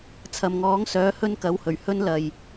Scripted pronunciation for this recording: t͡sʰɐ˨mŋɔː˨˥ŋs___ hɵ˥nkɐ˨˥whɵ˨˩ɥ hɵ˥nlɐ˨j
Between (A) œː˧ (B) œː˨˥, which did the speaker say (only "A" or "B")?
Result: B